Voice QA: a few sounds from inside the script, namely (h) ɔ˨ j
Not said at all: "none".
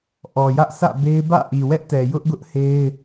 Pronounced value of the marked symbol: ʔ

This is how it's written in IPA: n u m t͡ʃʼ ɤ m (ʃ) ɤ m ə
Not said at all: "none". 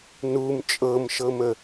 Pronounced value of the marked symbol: ʃ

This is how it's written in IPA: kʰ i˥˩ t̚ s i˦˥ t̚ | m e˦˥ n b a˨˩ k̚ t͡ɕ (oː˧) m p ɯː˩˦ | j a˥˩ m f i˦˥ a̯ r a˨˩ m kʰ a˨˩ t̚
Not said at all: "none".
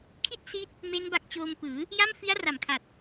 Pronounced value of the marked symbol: oː˧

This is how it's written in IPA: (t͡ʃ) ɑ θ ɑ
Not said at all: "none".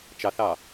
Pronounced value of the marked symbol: t͡ʃ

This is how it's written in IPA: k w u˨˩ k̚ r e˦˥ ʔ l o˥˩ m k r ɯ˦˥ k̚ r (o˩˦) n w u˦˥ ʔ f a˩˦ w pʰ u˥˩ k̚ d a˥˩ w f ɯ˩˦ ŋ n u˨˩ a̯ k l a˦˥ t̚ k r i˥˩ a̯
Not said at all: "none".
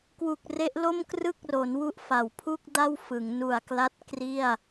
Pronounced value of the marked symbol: o˩˦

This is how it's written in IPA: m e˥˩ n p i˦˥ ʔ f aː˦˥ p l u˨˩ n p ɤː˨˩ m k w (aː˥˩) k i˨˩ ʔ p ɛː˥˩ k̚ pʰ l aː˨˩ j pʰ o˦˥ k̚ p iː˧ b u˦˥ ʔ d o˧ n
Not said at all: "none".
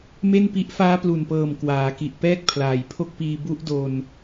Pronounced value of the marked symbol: aː˩˦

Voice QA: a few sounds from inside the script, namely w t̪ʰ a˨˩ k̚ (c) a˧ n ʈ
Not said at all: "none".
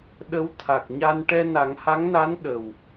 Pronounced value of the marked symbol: ɲ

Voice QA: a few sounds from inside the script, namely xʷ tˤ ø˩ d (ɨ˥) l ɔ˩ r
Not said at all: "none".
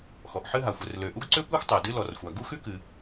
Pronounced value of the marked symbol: ɨ˥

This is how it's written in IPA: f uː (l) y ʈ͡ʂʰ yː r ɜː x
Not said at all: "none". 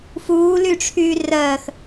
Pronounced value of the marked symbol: l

